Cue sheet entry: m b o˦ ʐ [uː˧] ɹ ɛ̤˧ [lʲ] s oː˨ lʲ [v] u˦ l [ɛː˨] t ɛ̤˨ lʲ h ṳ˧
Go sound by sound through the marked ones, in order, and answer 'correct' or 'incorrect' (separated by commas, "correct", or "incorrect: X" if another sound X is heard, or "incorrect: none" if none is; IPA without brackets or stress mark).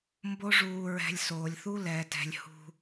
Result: correct, correct, incorrect: θ, correct